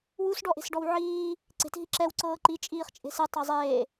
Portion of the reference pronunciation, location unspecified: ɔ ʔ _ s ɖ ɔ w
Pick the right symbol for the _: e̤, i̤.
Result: e̤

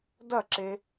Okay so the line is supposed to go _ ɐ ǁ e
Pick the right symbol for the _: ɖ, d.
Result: d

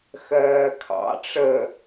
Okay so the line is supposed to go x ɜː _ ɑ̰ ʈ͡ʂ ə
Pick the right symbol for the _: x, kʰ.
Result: kʰ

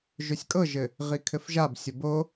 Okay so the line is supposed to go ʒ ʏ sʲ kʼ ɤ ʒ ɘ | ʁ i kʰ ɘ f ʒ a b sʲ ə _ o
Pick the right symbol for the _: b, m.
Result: b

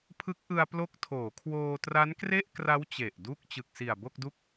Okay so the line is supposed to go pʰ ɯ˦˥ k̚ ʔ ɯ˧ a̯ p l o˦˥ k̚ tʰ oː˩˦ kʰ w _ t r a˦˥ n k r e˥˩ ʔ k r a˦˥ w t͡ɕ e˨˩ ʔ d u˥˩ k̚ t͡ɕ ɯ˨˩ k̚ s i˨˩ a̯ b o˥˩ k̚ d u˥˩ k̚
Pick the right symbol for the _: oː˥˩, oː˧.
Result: oː˧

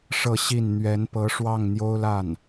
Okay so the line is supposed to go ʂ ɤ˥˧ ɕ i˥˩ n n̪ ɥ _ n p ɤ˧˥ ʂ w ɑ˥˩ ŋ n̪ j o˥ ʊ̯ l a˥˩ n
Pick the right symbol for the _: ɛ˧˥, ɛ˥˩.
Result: ɛ˧˥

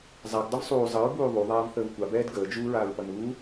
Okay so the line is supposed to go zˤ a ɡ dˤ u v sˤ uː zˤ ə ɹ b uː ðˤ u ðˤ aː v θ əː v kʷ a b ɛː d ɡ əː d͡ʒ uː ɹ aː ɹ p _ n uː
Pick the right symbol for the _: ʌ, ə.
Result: ʌ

